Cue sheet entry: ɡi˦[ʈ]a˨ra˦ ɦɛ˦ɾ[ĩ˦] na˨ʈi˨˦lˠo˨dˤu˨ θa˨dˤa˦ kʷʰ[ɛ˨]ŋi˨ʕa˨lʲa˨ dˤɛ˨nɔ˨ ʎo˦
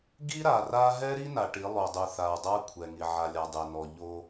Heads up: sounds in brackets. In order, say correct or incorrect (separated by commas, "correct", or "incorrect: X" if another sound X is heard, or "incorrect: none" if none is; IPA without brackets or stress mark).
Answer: incorrect: ɾ, incorrect: i˦, correct